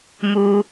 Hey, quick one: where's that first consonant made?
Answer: lips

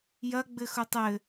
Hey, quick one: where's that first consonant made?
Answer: palate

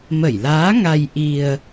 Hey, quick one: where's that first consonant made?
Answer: lips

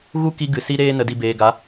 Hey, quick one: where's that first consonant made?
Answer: velum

